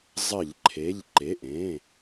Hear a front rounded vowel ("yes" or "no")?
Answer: no